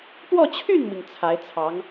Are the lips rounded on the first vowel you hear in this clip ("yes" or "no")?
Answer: yes